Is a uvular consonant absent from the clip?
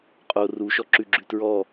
no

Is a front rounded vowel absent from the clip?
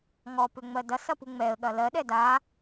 no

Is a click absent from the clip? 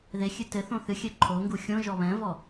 no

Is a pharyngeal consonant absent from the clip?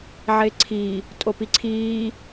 no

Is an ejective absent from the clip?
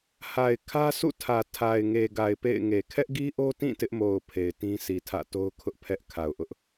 yes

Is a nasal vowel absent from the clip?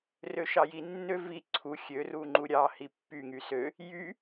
yes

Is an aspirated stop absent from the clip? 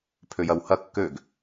no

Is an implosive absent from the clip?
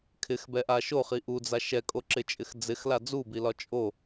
yes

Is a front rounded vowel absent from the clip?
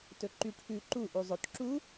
no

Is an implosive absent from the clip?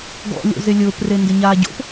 yes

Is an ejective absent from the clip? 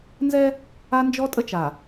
no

